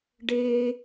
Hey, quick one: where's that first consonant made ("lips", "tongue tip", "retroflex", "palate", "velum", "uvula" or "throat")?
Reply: retroflex